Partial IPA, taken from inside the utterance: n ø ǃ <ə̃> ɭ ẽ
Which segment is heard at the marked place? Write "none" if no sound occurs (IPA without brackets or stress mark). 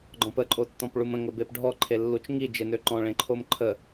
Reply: ɔ̃